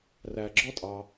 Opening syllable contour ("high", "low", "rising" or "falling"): low